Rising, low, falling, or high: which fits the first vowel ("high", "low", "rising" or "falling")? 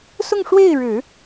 falling